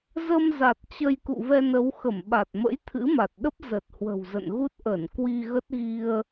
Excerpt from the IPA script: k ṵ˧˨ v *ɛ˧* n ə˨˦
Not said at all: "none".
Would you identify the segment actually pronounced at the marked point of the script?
ɛ˧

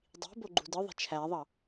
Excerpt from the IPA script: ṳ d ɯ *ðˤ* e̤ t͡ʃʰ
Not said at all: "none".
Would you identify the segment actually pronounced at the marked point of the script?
ðˤ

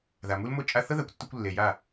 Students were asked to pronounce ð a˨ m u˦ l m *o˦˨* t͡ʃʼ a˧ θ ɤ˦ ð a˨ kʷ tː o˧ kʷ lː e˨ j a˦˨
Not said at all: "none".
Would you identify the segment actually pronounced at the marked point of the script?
o˦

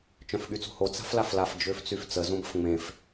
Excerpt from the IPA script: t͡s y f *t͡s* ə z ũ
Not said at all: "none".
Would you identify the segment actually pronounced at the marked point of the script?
t͡s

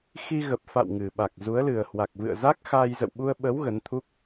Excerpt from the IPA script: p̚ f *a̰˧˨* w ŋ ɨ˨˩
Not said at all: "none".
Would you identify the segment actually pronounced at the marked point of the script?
a̰˧˨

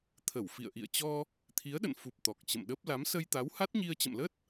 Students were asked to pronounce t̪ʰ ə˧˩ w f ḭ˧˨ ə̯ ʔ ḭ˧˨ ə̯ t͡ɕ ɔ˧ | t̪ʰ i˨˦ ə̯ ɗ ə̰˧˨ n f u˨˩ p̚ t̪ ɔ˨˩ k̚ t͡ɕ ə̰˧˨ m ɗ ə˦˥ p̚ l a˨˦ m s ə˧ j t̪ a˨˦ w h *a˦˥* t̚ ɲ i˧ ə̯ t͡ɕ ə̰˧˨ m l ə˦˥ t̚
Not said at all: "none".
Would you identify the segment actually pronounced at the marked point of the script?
a˦˥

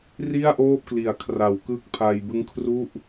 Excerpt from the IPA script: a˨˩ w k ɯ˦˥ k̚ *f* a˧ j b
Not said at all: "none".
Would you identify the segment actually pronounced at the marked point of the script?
pʰ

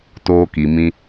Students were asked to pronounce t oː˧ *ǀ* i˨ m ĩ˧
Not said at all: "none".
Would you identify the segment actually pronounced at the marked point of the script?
k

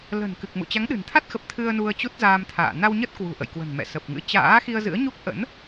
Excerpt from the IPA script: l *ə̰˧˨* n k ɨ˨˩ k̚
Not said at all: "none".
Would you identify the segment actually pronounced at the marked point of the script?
ə̤˨˩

